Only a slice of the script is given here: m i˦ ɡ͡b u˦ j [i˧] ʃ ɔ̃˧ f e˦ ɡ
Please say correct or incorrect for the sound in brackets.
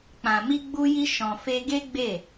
incorrect